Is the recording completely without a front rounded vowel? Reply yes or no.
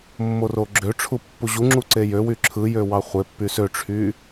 no